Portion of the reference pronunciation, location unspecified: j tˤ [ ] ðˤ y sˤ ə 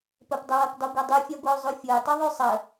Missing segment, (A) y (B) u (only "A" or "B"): A